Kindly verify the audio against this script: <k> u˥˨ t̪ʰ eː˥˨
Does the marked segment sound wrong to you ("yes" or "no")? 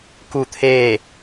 no